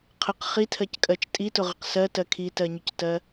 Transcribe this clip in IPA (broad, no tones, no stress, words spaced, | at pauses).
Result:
qʰəq χitʰɜckʼɜt͡ʃ tʼitʊʁəq sɜtɜ kʰitɜɲʊctɜ